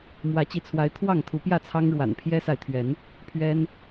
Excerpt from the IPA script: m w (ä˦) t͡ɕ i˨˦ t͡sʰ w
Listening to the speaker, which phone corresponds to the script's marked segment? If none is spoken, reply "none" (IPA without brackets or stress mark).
ä˨˦